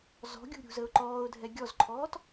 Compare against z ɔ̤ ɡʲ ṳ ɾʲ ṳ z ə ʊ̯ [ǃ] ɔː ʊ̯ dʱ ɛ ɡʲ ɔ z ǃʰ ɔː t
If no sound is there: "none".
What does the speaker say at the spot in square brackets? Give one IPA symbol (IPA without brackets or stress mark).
ǃ